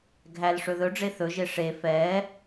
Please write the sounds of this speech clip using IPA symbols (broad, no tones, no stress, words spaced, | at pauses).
ɡʱæl ʂɵðɵɖ͡ʐe θɵʒe ʂe fɛː